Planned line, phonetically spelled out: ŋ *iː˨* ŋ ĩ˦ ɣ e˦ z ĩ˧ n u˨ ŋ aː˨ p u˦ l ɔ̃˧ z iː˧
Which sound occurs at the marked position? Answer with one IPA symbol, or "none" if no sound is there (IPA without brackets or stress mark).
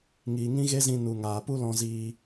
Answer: iː˨